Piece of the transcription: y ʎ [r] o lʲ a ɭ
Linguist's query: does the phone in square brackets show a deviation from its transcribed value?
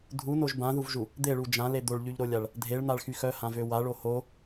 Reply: yes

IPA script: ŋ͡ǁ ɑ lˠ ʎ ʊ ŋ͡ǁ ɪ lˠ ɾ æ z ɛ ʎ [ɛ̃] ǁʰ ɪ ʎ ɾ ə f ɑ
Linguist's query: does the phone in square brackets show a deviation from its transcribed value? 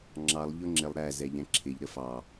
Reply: no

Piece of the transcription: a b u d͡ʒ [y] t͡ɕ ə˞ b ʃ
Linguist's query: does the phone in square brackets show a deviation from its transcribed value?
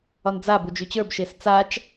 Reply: no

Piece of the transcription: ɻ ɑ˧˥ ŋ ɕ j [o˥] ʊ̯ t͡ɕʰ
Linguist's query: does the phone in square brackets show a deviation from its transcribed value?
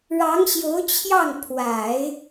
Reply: yes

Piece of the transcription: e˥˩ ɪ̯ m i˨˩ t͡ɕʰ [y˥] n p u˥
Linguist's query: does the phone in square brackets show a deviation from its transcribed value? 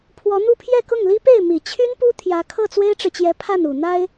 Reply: no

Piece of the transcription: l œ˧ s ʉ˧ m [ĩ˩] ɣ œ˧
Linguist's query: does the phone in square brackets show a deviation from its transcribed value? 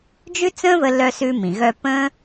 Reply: no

